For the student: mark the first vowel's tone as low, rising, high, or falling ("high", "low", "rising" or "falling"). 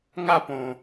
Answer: falling